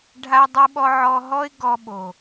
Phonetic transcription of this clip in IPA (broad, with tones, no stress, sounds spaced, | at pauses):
ɖʱ a˧ dˤ u˦ ɓ ɔ˦ ʕ ɔ˧ ɦ ɔ˦ ɪ̯ ɡ ɔ˧ ɓ o˨